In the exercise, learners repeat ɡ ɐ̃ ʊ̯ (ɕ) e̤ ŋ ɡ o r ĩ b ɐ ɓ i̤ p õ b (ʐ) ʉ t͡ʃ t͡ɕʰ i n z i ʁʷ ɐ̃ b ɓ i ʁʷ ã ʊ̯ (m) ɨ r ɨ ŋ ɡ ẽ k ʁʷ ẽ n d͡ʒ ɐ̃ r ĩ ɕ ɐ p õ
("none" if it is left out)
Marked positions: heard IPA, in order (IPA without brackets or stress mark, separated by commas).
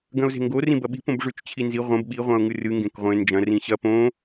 z, ʐ, ŋ